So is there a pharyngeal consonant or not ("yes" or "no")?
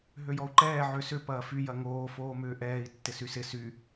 yes